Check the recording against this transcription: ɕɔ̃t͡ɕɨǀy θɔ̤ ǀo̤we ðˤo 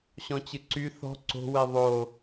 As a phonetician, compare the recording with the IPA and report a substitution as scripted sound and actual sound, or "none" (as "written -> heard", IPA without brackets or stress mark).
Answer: none